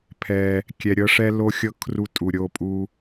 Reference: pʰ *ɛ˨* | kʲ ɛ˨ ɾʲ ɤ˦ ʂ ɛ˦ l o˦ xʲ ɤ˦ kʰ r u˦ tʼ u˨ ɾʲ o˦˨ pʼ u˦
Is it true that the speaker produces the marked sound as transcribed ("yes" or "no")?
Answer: yes